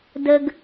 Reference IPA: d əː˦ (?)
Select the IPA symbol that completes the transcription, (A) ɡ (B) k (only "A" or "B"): A